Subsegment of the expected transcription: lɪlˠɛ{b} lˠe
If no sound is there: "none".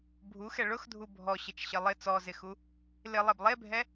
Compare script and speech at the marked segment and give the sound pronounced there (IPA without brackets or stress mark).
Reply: b